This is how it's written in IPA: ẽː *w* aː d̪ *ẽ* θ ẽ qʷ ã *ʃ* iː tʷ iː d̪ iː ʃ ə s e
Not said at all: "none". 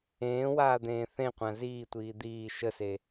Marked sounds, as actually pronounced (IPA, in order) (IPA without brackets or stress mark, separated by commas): w, ẽː, z